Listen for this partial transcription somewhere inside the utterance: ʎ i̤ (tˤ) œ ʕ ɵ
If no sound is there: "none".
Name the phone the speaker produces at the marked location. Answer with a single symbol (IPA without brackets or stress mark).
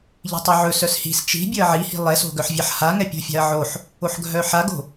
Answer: tˤ